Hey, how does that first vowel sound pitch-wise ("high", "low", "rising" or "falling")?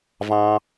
high